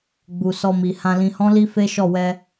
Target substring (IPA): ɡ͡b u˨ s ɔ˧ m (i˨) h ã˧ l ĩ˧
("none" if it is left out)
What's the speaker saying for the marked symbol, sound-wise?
i˨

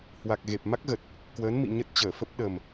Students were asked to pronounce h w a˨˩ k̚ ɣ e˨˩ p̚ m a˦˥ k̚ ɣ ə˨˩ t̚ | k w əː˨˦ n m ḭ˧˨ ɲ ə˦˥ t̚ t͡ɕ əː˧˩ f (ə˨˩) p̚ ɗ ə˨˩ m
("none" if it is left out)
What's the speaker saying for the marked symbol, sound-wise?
ə˦˥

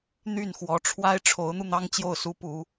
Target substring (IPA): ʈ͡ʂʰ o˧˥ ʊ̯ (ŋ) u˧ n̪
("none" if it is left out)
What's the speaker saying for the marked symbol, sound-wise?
n̪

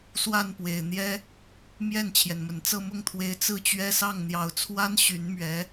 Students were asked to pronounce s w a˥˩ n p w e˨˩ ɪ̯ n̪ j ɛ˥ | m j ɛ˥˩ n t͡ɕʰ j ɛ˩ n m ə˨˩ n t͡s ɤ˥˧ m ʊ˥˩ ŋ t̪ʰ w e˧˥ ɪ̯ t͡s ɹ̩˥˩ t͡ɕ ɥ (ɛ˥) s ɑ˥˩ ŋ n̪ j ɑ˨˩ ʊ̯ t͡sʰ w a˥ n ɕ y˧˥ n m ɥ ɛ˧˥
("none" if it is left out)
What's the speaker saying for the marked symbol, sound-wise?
ɛ˥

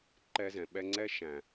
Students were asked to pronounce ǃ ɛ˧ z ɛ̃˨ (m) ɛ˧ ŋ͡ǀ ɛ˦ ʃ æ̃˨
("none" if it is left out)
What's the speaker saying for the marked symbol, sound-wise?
ɓ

